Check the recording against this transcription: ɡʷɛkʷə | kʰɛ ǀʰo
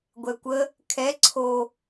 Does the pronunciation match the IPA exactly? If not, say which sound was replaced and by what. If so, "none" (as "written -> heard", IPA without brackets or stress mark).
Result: none